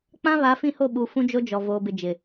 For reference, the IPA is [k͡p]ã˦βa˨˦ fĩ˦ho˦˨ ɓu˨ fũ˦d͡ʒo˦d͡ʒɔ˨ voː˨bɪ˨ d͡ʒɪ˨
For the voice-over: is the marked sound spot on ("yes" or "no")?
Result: yes